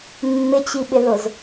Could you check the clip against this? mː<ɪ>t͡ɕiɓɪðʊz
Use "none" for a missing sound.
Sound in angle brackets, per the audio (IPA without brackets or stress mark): ɪ